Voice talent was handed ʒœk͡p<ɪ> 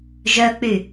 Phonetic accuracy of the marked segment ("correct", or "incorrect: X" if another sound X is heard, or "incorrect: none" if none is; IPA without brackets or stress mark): incorrect: y